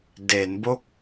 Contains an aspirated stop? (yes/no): no